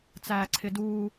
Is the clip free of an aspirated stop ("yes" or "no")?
no